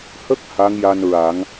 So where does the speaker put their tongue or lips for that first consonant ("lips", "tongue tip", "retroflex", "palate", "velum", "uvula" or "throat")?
throat